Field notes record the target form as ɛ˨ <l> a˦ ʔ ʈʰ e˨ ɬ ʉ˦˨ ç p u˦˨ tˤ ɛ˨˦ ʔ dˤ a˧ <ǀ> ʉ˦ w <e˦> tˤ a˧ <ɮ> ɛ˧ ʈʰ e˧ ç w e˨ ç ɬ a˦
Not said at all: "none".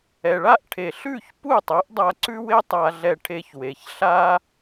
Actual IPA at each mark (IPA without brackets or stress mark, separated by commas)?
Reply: ɭ, ǀ, e˦, ɮ